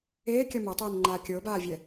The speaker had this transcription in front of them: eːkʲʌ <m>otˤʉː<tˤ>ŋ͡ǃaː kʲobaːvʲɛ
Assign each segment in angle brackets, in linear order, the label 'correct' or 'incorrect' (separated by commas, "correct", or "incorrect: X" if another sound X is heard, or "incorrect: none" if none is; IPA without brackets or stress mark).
correct, incorrect: n